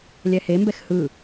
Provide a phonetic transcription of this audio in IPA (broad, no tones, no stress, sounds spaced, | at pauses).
lʲ ɛ h e m b ɛ x h ɯ